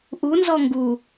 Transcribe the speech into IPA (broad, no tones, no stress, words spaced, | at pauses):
ʔunzɔ ŋɡu